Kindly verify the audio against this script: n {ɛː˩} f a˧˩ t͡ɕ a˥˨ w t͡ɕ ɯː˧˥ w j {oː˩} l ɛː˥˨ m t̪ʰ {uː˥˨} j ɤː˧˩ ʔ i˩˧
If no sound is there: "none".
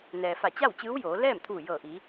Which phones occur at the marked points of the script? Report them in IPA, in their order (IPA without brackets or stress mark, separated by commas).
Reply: ɛː˩, oː˩˧, uː˧˩